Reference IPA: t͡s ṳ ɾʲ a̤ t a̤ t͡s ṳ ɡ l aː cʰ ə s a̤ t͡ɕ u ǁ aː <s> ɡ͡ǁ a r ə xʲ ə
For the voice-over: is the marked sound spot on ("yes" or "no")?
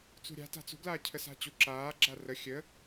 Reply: no